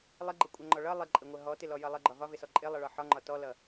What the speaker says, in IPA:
lˠ ɪ ɡ͡ǃ ə kʷʼ ʌ ŋ͡ǃ ɔ ɭ ʌ lˠ ɪ ǃʼ ɪ ŋʷ ə ɦ ɔ t ɪ l ɔ j ʌ lˠ ə ɡ͡ǃ ɒ v ɒ v ɪ s ɔ ǃʼ ɪ lˠ ʌ ɭ ɒ ħ ɒ ŋ͡ǃ ɒ t ɔ l ʌ

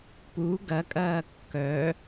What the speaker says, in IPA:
p u ɡ ɐ kʼ ɐː kː œ

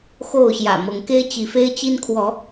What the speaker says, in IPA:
x o˥˨ ʊ̯ ɕ j ä̰˨˩ m ɤ˨˦ ŋ k e˦ ɪ̯ t͡ɕ i˨˦ f e˦ ɪ̯ t͡ɕ i˦ n kʰ w ɔ˨˦

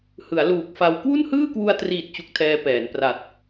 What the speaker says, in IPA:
h ɯ˩˦ a̯ l uː˨˩ k̚ f a˧ w k w u˥˩ n h ɯː˥˩ k w u˧ a̯ t r iː˨˩ t̚ t͡ɕ u˦˥ k̚ tʰ ɛː˧ p ɛː˩˦ n p r a˨˩ t̚

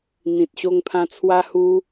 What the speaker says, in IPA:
n̪ ĩ˨ t̚ ɕ o˧ ŋ pʰ ã˧ t͡sʰ w a˧ h u˧

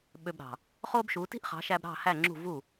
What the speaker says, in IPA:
ɓ ø˧ b ɾ ɑ̤˩ | χ o˥ b ʃ u˩˥ t i̤˥ ʔ χ ɑ̤˩˥ ʃ æ˧ b ɾ ɑ̤˥˩ h æ˥˩ ŋ͡ǁ ṳ˥˩ v u˥˩

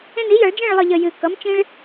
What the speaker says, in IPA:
ẽ˦ n i˩˥ j ʌ˨˩˦ ɭ d͡ʒ ẽ˥˨ ɭ lˠ ɯ˨ ʎ ə˨ j ɨ˨ k ʌ˩˥ m t͡ʃ ĩ˦ ɭ

